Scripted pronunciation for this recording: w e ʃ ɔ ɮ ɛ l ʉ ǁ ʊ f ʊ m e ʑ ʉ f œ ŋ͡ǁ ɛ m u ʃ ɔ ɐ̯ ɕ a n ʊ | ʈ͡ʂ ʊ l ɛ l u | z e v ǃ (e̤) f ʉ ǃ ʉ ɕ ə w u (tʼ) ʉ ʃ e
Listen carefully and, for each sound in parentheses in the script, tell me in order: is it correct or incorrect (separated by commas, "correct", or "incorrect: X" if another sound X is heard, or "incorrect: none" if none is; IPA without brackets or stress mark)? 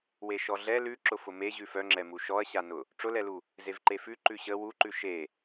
incorrect: e, incorrect: ǃ